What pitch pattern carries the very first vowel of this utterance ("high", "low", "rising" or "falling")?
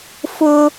high